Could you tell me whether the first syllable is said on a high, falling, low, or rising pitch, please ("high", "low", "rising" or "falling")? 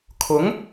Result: rising